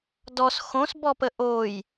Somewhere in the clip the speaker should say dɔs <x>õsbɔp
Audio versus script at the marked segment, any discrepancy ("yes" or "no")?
no